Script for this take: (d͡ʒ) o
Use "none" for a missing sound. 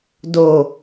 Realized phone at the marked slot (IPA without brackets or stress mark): d